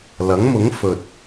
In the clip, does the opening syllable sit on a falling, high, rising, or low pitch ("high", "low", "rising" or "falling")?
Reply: rising